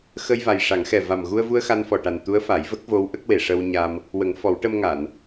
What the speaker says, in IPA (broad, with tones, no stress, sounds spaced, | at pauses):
x ə˧ j v a˨˩ j ʂ a˨˩˦ ŋ x ɛ˨˩ v a˨˩ m ɣ u˧ ə̯ v u˧ ə̯ x a˧ n f ɔ˨˩ ʈ a˨˩ n t̪ u˧˥ ə̯ f a˨˩˦ j v ə˦˥ k̚ v o˧˥ w ʔ ə˦˥ k̚ w e˨˩ ʂ ə˧ w ɲ a˧ m | w ə˨˩˦ ŋ f ɔ˨˩˦ w ʈ ə˧ m ŋ a˨˩˨ n